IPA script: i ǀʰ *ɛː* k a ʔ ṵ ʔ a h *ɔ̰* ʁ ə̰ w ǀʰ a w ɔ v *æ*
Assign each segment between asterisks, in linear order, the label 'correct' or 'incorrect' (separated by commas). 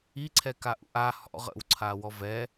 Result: incorrect, correct, incorrect